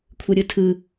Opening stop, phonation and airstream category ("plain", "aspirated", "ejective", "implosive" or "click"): aspirated